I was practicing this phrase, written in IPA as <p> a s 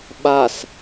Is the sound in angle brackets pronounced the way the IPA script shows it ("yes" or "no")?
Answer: no